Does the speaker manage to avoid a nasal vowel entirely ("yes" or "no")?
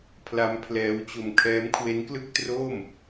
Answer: yes